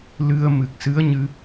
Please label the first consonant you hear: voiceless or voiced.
voiced